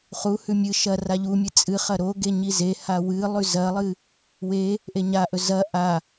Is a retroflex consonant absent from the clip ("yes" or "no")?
yes